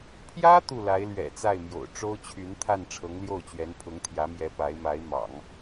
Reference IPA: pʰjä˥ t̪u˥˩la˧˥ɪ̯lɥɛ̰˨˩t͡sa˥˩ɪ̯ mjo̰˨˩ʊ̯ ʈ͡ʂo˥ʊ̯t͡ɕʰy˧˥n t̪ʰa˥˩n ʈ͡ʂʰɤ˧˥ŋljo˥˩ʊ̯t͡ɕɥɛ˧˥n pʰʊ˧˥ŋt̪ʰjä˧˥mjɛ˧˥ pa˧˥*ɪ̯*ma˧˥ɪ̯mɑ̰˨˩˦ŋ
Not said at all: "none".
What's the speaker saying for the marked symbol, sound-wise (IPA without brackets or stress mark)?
ɪ̯